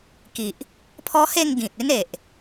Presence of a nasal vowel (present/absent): present